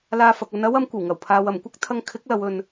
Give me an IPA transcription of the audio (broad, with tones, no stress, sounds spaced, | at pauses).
l aː˧ f ɐ˨ k̚ ɐ˧ n ɐ˥ w ɐ˨˥ m kʷ ɐ˨˩ w ŋ ɐ˨˩ w pʰ aː˨ w ɐ˨˩ m kʷ ɐ˥ k̚ t̪ʰ ɐ˧ ŋ kʰ ɪ˨˥ k̚ l ɐ˨ w ɵ˧ n